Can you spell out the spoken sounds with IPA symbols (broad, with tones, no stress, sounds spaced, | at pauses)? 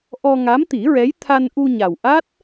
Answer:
ʔ ɔ˧ ŋ a˧˥ m t̪ i˨˩˦ ɹ ɛ˧˥ j t̪ʰ a˧ n ʔ u˧ ɲ a˨˩ w ʔ a˦˥ t̚